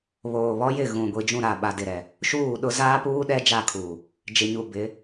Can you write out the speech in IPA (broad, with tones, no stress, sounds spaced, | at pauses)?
β oː˨ β ɔ˦ j ɪ˦˨ ɣ ũ˨ ɡʷ i˨ d͡ʒ ũ˦˨ ɾ a˦˨ ɓ a˨ d ɪ˨ ɾ ɛ˨ | ʃ uː˦˨ ɗ ʊ˦ z aː˦ p uː˦ ɗ ɛ˦ d͡ʒ a˦˨ kʰ uː˨ | d͡ʒ ɪ˨ ɲ u˨ b ɪ˨˦